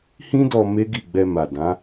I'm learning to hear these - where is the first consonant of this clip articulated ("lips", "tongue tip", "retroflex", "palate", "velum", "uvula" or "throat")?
throat